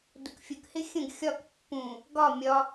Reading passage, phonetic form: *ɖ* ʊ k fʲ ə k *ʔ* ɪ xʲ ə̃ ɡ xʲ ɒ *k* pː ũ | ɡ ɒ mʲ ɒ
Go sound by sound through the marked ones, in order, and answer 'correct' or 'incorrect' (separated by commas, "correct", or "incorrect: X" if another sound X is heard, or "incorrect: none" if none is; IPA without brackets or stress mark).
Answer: incorrect: d, incorrect: h, correct